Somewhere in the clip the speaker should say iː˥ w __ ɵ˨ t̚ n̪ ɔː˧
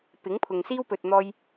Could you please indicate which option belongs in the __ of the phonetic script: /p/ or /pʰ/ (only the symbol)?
p